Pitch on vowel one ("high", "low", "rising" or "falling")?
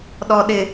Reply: low